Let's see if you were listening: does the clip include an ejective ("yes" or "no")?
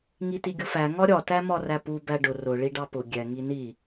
no